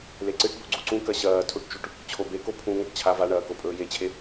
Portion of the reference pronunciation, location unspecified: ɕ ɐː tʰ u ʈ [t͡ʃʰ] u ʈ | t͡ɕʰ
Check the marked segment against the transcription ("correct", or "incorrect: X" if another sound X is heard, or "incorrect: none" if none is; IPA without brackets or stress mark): incorrect: t͡ʃ